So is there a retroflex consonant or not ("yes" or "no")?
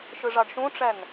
yes